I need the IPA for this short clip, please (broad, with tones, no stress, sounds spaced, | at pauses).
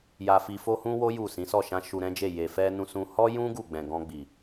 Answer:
j a˧ f i˧ f o˦ h ũ˦ w o˦ j u˦˨ s ĩ˨˦ s ɔ˦˨ ʃ ã˧ ʃ u˧ ɾ ɛ̃˦ d͡ʒ e˦˨ j e˨ f ɛ˧ n ũ˧ s ũ˧ h ɔ˦ j ũ˦ ɡ u˦˨ ɡ͡b ɛ̃˨ ɡ ɔ̃˧ ɡ͡b i˨